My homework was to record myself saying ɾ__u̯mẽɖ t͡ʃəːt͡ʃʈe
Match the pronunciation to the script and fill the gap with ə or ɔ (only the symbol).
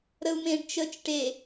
ə